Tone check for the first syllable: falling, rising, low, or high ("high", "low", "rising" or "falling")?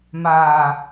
low